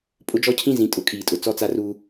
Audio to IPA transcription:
pʼ ʊ˦ d͡ʒ ɔ˦ cʰ ĩ˦ z ĩ˨ tʼ ʊ˦˨ kʼ iː˨ tʼ ʊ˨ t͡s ɔ˦ t͡s a˦ r uː˦

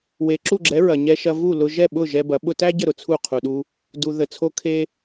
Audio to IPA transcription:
w e˩ ǁ u˥˩ ɡ͡ǁ ɛ˩˥ ɹ ɐ˩ ɲ ɛ˧ ʃ ɐ˧ v u˥˩ l ʊ˧ ʒ ɛ˥˩ ɓ ʊ˥˩ ʒ ɛ˧ b ɐ˩˥ ɓ ʊ˧ t æ˥ ɟ ə˥˩ ɾ ʊ˩ t͡sʰ u˥˩ qʰ u˩ ɗ u˧ | d u˩ ð ə˩ t͡sʰ o˧ kʰ e˧

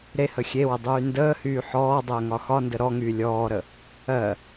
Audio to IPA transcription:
ɾ e h ə xʲ e w ə dˤ yː n d əː h yː ħ ɔː dˤ əː ŋ ɒ x ɒ n d ə ɾ ɔ ŋ yː lʲ ɔː ɾ ə | ɜ

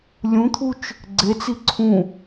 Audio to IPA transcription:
lʲ ũ t̪ʰ u t͡ʃ | ɡ͡ǀ e t͡s i ǀʰ ũ

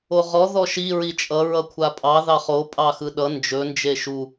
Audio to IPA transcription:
o ʁ ɔ ð ɔ ʃ i ɹ i t͡ʃʼ ʌ ɹ ʌ kʷʰ a pʼ ɑ ð ɑ χ o pʼ ɑ x ɯ ɗ ʌ n d͡ʒ ɵ n d͡ʒ e ʃ u

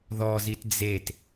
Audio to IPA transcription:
ð ɔ z i t d͡z e t

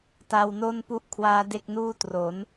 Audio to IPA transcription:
t a˧ w n o˥˩ n p u˥˩ ʔ kʰ w aː˦˥ d e˥˩ k̚ n uː˥˩ t r o˩˦ n

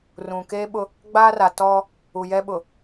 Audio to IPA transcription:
r ũ˨ k eː˦ ɓ ʊ˦ | ɡ͡b aː˦ r a˨ t ɔ˦ | u˨ j ɛ˦ ɓ ʊ˨

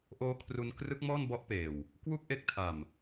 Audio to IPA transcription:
ʔ oː˦˥ kʰ r u˧ n k r ɯ˦˥ k̚ m ɔː˥˩ n b ɔ˦˥ ʔ p eː˨˩ w | k w u˥˩ k̚ ʔ e˦˥ k̚ tʰ a˨˩ m

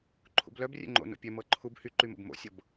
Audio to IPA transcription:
ǃʰ ṵ b l œ b rʲ ɛ̰ ŋ͡ǃ o̰ n o̰ pʲ ɛ m ɤ ǃʰ u b h y ǃ y m o̰ b m o̰ sʲ ɤ b

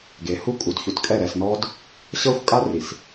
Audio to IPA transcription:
ɡ e˨ h u˦ kʼ u˨ d ç u˨ t kʼ ɛ˦˨ ɾ ɛ˨ s n ɔ˦ d | ɕ ɤ˦ xʷ kʼ a˦ r i˨ s

